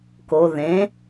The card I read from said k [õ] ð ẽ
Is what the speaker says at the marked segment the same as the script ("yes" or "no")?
no